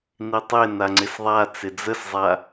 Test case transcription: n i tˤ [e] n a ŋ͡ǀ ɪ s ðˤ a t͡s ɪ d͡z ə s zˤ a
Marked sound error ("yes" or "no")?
no